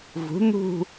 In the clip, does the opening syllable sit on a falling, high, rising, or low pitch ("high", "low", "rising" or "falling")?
rising